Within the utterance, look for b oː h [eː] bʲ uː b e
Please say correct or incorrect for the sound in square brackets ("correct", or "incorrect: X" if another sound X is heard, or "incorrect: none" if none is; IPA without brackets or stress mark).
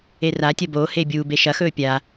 correct